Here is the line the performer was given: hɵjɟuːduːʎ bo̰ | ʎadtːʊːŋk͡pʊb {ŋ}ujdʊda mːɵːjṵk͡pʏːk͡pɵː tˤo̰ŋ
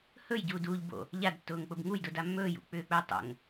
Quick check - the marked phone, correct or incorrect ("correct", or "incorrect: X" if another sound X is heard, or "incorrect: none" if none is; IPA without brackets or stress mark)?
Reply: correct